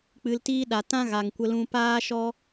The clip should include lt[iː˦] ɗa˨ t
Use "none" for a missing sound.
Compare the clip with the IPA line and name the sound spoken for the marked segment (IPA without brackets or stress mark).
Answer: iː˧